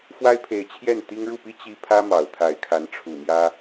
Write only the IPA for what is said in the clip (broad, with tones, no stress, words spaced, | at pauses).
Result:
fwa˥ɪ̯pʰe˧˥ɪ̯t͡ɕʰjɛ˥˩n t̪i˥ŋ ɻu˥˩pi˥ t͡ɕi˥ pʰä˥mɑ˨˩ʊ̯t̪ʰa˧˥ɪ̯kʰa˧˥n ʈ͡ʂʰu˨˩mjä˥